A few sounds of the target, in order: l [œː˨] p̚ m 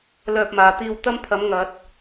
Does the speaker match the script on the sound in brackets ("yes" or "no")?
no